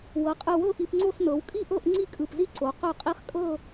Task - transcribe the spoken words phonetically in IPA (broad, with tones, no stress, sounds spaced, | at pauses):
w ɤ˩˧ qʼ ɯ˧˩ w ɤ˥˧ ʔ i˧ p ŋ͡ǀ o˥˧ s n ɤ˩˧ w kʼ i˥˧ ʔ ɤ˥˧ ʔ ŋ͡ǀ i˥˧ kʼ ɯ˧˩ p z i˥ ǀ o˩˧ q œ˥˧ qʼ i˥ χ kʼ ɤ˥˧